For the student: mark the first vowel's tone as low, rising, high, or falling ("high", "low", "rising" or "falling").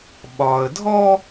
low